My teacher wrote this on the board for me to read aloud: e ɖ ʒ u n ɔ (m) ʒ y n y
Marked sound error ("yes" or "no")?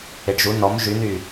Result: no